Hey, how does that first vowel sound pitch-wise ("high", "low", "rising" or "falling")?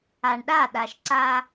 low